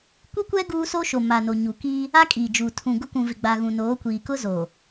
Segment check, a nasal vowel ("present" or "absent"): present